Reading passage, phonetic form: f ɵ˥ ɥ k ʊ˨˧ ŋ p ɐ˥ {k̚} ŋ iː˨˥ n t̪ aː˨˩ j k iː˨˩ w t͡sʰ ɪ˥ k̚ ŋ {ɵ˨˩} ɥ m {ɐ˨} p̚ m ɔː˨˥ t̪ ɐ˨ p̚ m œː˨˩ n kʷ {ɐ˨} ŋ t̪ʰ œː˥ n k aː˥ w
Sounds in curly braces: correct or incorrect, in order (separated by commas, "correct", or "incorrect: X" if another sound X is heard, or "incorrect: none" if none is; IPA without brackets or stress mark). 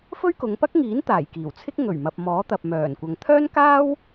correct, correct, correct, correct